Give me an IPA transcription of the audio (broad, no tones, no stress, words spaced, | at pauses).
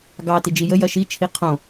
ɡɑ tid͡ʒijə jɐʃi t͡ʃʰiqʰõ